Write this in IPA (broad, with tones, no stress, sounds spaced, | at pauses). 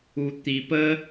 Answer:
u˧ t̪ i˧ p ə˦